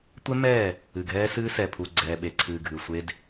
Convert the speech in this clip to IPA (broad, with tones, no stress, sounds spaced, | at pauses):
tʷ ɛ˦ m ɛː˦˨ | ɨ˨ ɡʱ ɛː˦ s ɨː˦ s ɛ˨ pʰ u˨ ɡ͡ǀ ɛː˨ ɓ e˨ ǀʰ ɨː˨ ɡʱ ɨ˨ sʷ e˦ d